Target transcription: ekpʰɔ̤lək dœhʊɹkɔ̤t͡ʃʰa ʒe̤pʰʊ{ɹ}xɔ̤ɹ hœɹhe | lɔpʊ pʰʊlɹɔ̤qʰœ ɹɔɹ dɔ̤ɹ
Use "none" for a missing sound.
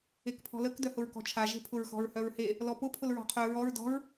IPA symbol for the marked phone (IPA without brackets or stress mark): ɹ